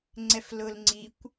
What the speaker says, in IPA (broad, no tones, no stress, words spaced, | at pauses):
ŋ͡ǀɛflʊl ŋ͡ǀikʷ